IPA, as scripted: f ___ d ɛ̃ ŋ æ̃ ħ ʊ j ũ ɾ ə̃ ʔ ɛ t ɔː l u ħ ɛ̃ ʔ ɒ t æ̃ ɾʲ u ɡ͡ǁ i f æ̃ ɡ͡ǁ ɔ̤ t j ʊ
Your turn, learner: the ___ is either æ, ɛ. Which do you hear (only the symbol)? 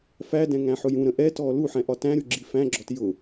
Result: æ